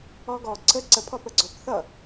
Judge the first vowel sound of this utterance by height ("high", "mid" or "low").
mid